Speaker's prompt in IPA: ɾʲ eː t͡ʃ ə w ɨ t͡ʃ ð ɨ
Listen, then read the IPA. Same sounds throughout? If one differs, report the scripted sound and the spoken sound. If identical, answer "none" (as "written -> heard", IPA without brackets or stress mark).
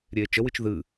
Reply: none